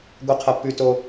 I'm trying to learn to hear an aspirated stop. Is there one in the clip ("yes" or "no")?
yes